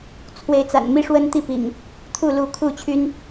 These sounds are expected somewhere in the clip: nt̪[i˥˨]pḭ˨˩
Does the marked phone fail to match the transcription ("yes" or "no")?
no